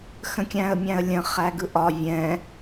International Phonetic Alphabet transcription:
xə̃kʲæ̃ə̯mʲæ̃ə̯lʲə̃ χæɡɯʔɒ vʲɛ̃

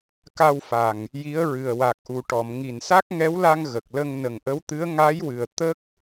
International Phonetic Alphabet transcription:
ka˧wfa˨˩ŋ | ji˧˥ə̯ɹɨ˨˩ə̯ wa˨˩k̚ʔu˨˩ ʈɔ˨˩˨m ŋi˨˩nsa˦˥k̚ŋɛ˧˥wla˧ŋ ɣə˨˩k̚lə˧ŋ nə˨˩ŋʔə˧˥wt̪ɨ˧˥ə̯ ŋa˧˥jwɨ˨˩ə̯ t̪ə˦˥k̚

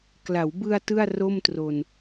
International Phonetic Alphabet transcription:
kla˩˦wbɯ˧a̯ tɯ˥˩a̯ro˥˩mtro˧n

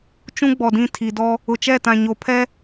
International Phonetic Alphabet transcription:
t͡ʃũ˦ɡ͡bɔ˨dĩ˦˨ tʰi˨dɔ˦ | ʊ˨t͡ʃɛ˦˨tã˨ ɲo˨pʰɛ˦

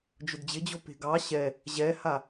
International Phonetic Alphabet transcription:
d͡ʒʊdd͡ʑɪd͡ʑo pe̤ɡɑ ɕɛ | ʑɛha

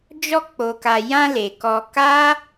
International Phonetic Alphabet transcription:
d͡ʒɔ˧k͡po˨ka˨jã˧ le˨kɔ˧ ka˦

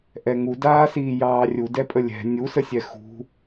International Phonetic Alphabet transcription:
ʔɛŋudaːsiː jɑːrʲudɛpʼə lʲɛ̤ nʲusəsʲɛ xṳ

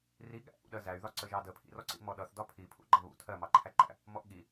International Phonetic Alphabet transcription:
riɠæ̰ʔṵɗɜ zæy̯ðɒ ǀəʒɑdə pʰḭrɔǀḭmɔ ɗʌθdɒ pʰipʰṵɡ͡ǃɑ βṵ tʰɜmɑǃʰæǃæ̰ | mɔʔɠi

